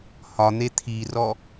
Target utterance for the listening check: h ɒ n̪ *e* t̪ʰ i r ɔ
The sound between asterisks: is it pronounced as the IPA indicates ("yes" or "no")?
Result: yes